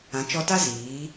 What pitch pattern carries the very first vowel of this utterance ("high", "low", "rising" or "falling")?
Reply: rising